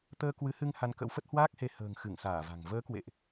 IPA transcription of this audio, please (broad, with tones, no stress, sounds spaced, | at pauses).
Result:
t̪ əː˧ k w ɨ˨˦ h ɨ˧ ŋ h a˧ n k ə̰˧˥ w f ə˦˥ t̚ h w aː˦˥ k̚ h e˧ h ə̤ː˨˩ ŋ x ɨ˧˩ ŋ s aː˧˩ v a̤˨˩ ŋ v əː˨˦ k w ḛ˧˨ ʔ